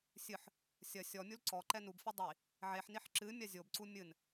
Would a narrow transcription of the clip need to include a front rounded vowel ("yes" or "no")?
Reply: no